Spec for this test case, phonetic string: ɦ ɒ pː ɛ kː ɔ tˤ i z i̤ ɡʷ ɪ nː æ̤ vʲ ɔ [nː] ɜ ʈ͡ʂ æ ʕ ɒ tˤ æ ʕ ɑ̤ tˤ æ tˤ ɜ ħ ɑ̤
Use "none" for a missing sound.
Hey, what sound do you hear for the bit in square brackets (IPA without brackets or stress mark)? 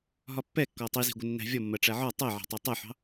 mː